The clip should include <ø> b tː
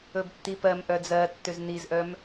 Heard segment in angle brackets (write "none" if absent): ɵ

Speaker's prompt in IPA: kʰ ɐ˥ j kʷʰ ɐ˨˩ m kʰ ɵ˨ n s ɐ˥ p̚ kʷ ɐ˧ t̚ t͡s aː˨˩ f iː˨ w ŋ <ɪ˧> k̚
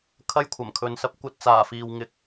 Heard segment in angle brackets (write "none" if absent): ɪ˧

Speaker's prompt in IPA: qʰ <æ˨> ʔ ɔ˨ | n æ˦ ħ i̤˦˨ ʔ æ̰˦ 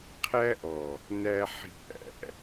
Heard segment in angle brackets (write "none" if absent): æ˦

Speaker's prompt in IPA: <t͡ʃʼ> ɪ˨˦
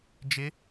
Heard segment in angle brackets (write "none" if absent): d͡ʒ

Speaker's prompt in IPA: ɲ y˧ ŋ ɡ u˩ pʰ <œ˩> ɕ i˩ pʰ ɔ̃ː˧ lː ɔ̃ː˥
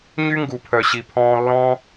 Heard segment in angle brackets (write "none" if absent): œ˩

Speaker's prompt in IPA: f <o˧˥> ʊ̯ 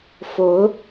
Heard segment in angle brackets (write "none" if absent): o˧˥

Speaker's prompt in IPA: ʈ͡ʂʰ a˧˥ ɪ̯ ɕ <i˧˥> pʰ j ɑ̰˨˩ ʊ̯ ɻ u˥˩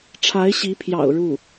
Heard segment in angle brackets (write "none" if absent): i˧˥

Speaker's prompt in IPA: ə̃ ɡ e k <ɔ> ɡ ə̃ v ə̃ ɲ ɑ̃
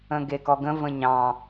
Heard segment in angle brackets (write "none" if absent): ɔ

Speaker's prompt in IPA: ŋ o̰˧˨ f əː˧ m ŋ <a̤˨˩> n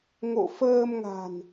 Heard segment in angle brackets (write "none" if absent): a̤˨˩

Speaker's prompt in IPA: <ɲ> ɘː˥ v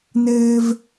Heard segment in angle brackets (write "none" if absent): n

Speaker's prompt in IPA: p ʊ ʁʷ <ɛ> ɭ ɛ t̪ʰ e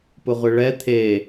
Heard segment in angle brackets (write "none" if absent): ɪ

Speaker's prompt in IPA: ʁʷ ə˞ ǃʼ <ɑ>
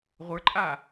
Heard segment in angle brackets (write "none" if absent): a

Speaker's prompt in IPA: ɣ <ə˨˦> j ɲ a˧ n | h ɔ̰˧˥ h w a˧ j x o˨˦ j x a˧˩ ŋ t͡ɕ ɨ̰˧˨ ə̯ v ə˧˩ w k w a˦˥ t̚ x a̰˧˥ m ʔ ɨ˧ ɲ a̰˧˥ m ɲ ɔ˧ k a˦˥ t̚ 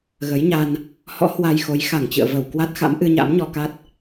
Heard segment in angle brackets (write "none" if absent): ə˨˦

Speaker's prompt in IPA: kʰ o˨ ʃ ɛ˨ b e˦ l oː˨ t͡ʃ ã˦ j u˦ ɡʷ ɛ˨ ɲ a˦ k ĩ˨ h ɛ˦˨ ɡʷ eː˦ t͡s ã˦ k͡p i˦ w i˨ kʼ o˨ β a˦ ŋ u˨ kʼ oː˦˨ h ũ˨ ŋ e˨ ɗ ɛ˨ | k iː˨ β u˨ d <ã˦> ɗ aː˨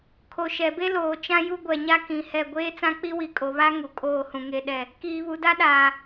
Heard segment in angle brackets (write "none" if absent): a˦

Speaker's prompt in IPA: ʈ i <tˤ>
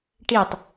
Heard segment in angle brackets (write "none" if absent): tˤ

